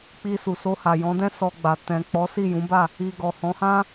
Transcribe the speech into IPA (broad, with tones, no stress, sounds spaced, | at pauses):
k͡p i˧ s u˨ s o˧ h a˨ j ɔ̃˨˦ d ɛ̃˦ s ɔ˧ ɡ͡b a˨ t ɛ̃˨ k͡p ɔ˨˦ s i˦˨ j ũ˨˦ b a˦˨ | i˧ ɡ ɔ˨ h ɔ̃˨˦ h ã˦